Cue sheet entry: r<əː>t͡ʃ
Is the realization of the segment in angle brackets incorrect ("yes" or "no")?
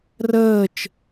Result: no